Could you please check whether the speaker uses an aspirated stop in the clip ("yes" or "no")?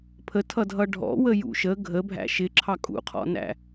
yes